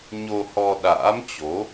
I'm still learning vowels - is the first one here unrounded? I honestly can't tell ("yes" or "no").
no